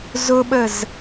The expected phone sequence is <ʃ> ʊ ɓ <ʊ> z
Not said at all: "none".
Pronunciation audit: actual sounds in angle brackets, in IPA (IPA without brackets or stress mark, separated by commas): z, ə